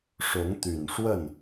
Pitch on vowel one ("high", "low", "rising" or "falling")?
rising